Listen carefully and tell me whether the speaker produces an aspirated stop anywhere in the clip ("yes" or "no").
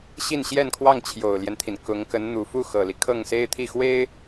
yes